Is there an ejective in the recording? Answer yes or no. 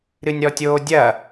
no